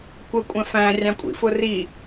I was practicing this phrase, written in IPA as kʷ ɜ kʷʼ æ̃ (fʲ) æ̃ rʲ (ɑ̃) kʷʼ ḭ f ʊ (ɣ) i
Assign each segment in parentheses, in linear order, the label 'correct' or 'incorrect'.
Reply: incorrect, correct, incorrect

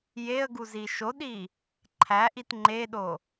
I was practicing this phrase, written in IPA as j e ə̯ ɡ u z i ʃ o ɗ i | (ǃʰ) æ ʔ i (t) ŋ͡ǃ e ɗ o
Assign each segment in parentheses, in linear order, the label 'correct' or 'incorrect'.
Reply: correct, correct

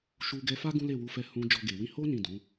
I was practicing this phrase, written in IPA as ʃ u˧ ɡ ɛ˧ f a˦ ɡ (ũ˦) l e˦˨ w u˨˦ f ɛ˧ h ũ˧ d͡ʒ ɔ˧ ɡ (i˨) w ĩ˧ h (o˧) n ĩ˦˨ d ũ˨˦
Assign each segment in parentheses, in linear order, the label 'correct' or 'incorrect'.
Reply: correct, incorrect, incorrect

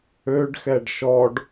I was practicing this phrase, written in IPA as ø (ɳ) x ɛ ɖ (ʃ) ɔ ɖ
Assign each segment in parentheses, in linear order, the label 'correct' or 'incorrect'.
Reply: incorrect, correct

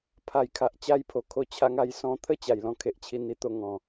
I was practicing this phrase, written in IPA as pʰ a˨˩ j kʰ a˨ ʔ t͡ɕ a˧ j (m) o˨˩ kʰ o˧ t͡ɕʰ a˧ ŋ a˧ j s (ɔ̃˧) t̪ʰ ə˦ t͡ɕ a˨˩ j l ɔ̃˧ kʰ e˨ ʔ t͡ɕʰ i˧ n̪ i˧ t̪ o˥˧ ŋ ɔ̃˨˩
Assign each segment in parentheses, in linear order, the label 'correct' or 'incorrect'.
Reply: incorrect, incorrect

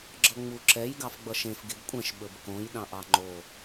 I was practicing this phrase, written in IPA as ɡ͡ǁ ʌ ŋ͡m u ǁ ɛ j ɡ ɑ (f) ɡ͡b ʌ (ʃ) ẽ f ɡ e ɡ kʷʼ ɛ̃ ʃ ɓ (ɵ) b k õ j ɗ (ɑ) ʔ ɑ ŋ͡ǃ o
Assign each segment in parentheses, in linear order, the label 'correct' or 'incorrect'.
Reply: correct, correct, correct, incorrect

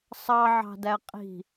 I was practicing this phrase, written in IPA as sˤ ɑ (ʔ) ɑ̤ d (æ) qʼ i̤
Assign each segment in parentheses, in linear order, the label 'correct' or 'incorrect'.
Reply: incorrect, correct

